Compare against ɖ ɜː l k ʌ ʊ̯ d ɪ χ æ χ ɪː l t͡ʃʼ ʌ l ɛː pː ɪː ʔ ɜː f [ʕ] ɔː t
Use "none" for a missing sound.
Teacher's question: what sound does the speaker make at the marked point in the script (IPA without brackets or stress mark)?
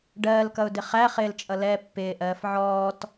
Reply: ʕ